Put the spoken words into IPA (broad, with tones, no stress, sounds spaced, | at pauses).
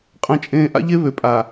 qʼ ɛ̃˨ t͡ʃʼ ẽː˨ ʔ a̰˦ ʎ e˦ β ø˨ pʼ a˨